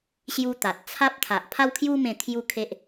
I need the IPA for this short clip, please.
ɕ j u˦ t̪ a˨ t̚ t͡sʰ a˦ p̚ t̪ʰ a˨ ʔ pʰ a˦ w kʰ j u˦ m ẽ˧ t̪ʰ j u˥˧ kʰ e˦ ʔ

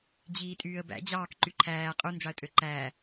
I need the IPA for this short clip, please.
d͡ʑ iː tʼ yː ə̯ b æ̰ d͡ʑ ɑː k ǃ y ǃʰ æː qʼ u n d͡ʒ ɑ ə̯ tʼ ø ǃ æː

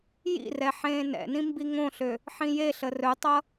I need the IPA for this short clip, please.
j ḭ r ɛ ħ ẽː n ɛ̰ n ĩ m b i ŋ õ ɬ ø | ħ ĩ j e ɬ ə r ɵ tˤ ʌ

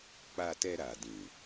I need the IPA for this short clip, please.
k͡p a˧ t ɛ˧ ɾ a˨ d ĩ˨

